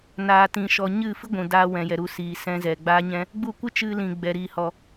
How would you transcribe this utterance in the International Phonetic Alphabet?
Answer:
naː˨ tĩ˨ʃɔ˨ɲɨ˦˨ fɨ˦ɡʷũ˨daː˧ wɛ̃˨jɛ˨ɾu˧ siː˨sɛ̃˧zɛ˨ ɡ͡baː˦ɲɛ̃˦ | ɡ͡bu˦˨kʷɨ˦ t͡ʃɨ˧lĩ˨ ɡ͡bɛ˨ɾiː˧hɔ˧

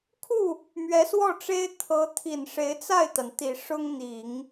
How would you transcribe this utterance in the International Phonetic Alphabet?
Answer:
kʰu˥˩ | mɥɛ˧˥swɔ˥˩ʈ͡ʂe˥ɪ̯ t̪ʰɤ˧˥t̪ʰi˨˩nʂe˧˥ɪ̯ t͡sa˥˩ɪ̯t̪a˩n t̪i˨˩ʂʊ˥ŋ n̪i˨˩˦ŋ

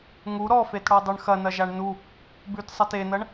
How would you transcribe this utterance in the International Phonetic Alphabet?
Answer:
ŋu ɾɔfetɽɔdˤʉɳ xɐnɐʒaɳ nu | bʉtsˤɐt enɐɳ

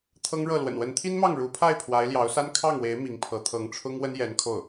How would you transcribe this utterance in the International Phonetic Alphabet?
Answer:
t̪ʰɤ˥ŋɻɤ˥˩ lwə̰˨˩nwə˧˥nt̪ʰi˥nmɑ˥˩ŋ ɻu˧˥pʰa˥˩ɪ̯ pʰwa˧˥ɪ̯ ljɑ˧˥ʊ̯sa˥n kʰɑ˥˩ŋwe˧˥ɪ̯ mi˧˥ŋpʰɤ˧˥ t̪ʰɤ˧˥ŋʈ͡ʂʰʊ˥ŋwə˥njɛ˧˥n kʰo˥˩ʊ̯

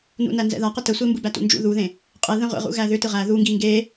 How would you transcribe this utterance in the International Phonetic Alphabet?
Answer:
nṵnænzɛ̰ða qətəsʷe mbɯbætṵnd͡ʒṵ ðuðẽ | qʼɛðɛ̃ ʁʷḛʁṵɣæ ðʏ tɯʁæ ðuŋɡi ŋɡe

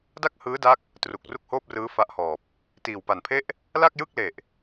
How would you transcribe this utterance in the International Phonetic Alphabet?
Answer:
da˥˩k̚hɯː˦˥da˦˥k̚ | tru˨˩k̚ru˥˩k̚hoː˥˩p̚rɯː˦˥ fa˦˥ʔhɔː˨˩p̚ | tiː˨˩wpa˨˩npʰe˥˩ʔ | la˥˩k̚ jɯ˥˩k̚ le˨˩ʔ

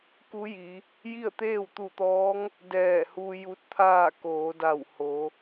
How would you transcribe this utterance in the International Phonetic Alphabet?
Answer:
ku˧˥ji˩˧ | ji˥˨ə̯t̪eː˥˨w t̪u˧˩t̪ɔː˧˥ŋ | dɛː˧˩hu˧ ju˧˥t̚t̪ʰaː˥˨ koː˩˧da˧˩w ho˩˧

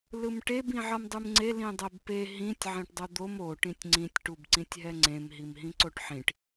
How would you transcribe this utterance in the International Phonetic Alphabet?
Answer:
lɯmʈeb ĩʕʌmdˤɯmŋ͡ǀe lĩdˤɛbpe ɦĩtʲ ʕẽʈdˤod̪om o ʈĩtʲŋ͡ǀĩtʲ ʈubǀĩtʲɦɛŋ͡ǀẽm ɦimɦĩǀoʈħĩʈ

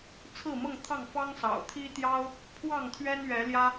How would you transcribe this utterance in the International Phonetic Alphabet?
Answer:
t͡sʰɹ̩˥˨mɤ˥˨ŋt̪ʰɑ˥˨ŋ fɑ˦ŋsɑ̰˨˩ʊ̯ t̪ʰi˦t̪jɑ˦ʊ̯ | pʰwɑ˥˨ŋt̪ʰɥɛ˦nɥɛ˨˦ ljä˦

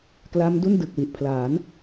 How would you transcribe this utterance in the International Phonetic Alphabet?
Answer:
kla˦˥mdu˥˩n dɯ˨˩k̚wi˨˩ʔpʰlaː˩˦n

